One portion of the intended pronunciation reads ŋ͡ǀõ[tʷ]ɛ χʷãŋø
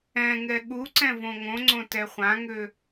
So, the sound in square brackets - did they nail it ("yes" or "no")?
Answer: no